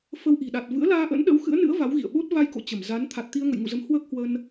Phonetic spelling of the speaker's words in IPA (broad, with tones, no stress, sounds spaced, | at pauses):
f ə˧ w ʔ i̤˨˩ ɗ a˨˩ t̚ v ɨ̰˧˥ ə̯ l aː˧ ʔ ə̰˧˥ n ɗ ə̰˧˥ w x ɨ̰˧˥ ə̯ n ɨ̰˧˥ ə̯ v a˨˦ w ɣ ḭ˧˨ ə̯ ɓ o˦˥ t̚ v a˧ j k o̰˧˨ t͡ɕ ə˧˩ m z a˨˦ n t̪ʰ a˨˩ t̚ t̪ i˧ ə̯ ŋ ə̰˧˨ j ŋ ṵ˧˨ z ə˨˦ m h w əː˦˥ k̚ h w ə˧ n